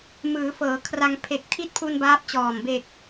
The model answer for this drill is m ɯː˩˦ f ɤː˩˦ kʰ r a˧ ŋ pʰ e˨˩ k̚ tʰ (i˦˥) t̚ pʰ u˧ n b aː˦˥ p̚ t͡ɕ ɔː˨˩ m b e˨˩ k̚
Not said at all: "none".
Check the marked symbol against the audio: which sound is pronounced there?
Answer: i˦˥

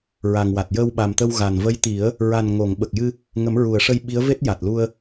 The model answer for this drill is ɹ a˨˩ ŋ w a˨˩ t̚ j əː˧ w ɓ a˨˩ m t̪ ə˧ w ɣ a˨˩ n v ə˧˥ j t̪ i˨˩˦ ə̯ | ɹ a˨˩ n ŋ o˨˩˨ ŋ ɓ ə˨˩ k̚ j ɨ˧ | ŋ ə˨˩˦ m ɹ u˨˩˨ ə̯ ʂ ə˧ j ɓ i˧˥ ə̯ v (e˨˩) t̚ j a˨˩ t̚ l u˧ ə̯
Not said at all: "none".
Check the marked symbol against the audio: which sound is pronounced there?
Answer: e˦˥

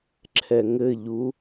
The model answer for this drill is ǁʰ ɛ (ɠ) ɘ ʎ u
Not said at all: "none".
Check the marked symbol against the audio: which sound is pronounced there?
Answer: ŋ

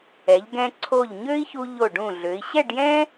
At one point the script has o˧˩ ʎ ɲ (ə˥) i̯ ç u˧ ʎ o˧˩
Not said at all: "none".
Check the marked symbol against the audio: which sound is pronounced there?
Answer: ø˥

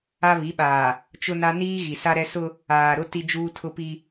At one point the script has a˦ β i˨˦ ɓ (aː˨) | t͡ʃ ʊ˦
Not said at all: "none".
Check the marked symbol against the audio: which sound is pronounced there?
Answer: aː˨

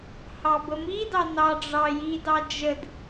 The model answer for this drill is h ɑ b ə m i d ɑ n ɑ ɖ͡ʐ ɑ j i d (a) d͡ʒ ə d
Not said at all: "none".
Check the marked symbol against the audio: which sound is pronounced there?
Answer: ɑ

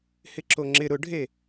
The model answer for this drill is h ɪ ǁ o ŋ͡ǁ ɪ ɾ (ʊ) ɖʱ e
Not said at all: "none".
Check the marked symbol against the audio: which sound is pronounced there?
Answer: ʊ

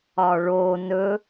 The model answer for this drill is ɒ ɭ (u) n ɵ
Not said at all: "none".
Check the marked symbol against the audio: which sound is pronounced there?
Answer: o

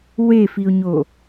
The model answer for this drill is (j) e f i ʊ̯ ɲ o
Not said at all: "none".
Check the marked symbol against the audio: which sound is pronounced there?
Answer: w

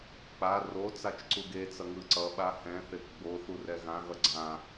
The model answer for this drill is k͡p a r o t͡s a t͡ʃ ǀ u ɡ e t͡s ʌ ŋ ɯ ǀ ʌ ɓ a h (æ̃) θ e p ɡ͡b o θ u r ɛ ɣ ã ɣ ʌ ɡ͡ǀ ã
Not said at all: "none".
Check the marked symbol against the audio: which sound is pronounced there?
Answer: ɛ̃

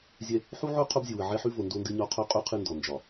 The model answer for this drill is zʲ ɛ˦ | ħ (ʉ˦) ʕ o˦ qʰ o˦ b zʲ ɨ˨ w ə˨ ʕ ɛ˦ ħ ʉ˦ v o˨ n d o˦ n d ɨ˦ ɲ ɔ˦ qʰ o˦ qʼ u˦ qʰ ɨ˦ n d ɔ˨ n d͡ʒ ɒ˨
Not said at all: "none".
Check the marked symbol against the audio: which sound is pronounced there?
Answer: u˦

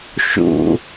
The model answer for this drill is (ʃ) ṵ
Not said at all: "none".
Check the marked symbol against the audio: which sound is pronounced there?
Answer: ʃ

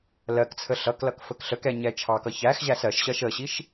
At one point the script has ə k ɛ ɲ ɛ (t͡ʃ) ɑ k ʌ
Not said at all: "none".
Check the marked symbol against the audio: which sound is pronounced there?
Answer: t͡ʃʰ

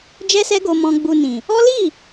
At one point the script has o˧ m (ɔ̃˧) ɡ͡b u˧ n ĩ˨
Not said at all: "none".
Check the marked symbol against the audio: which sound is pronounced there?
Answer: ɔ̃˧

